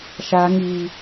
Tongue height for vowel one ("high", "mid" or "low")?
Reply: low